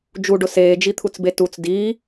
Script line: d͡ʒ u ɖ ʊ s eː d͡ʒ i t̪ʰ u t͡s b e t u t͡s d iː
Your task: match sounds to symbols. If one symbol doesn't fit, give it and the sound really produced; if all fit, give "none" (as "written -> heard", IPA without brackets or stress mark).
none